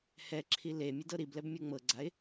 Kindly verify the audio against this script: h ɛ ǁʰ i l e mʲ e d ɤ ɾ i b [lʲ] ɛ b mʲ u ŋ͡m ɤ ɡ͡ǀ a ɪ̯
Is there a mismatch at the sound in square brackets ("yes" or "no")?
yes